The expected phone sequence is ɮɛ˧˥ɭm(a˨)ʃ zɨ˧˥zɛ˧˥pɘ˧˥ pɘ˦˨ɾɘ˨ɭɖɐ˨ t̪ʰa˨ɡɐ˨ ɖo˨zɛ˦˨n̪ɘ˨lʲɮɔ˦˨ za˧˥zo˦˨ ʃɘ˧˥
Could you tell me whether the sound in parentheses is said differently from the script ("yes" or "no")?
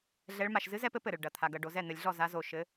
yes